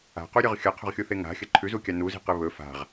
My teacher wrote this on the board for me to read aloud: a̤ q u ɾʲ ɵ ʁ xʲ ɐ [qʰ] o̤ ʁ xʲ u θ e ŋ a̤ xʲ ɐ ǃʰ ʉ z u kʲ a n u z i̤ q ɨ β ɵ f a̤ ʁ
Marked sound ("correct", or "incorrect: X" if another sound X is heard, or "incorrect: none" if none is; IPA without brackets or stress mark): correct